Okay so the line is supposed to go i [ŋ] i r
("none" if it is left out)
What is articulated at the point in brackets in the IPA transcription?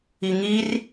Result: ŋ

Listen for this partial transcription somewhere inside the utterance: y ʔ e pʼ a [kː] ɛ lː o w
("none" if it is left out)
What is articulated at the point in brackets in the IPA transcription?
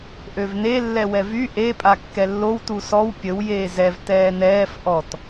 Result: kː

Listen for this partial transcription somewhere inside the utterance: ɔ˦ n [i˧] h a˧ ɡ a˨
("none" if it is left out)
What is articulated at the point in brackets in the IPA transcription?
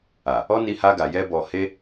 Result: i˧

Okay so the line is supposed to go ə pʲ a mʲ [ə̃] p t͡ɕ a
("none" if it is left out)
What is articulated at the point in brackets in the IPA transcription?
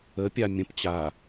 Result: ə̃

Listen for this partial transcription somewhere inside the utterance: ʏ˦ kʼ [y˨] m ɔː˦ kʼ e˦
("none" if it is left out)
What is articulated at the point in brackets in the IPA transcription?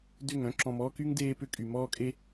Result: y˨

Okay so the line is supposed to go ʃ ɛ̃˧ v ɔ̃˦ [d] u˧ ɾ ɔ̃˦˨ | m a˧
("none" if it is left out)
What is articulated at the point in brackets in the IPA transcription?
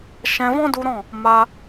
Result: d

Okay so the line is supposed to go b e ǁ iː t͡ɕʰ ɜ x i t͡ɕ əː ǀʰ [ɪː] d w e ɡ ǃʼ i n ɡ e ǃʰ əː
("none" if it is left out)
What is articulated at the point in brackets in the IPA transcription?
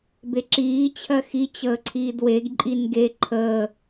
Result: iː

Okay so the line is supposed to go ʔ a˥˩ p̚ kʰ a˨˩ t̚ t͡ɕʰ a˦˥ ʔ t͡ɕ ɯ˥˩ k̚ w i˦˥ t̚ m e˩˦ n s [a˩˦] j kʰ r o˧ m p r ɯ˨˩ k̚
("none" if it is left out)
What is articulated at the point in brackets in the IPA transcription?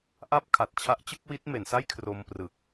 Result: a˥˩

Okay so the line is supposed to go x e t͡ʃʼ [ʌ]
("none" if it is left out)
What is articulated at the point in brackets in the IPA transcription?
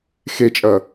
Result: ʌ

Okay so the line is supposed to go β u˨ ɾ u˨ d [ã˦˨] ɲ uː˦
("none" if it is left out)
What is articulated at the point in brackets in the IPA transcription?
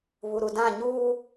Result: ã˦˨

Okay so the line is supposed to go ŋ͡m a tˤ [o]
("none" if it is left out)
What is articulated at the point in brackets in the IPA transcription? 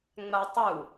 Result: u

